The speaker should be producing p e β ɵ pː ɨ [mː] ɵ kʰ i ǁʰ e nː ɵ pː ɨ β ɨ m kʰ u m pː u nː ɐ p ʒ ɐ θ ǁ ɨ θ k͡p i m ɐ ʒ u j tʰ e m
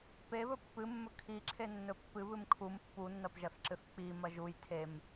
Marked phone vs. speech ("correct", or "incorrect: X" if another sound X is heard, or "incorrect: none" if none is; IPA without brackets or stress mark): correct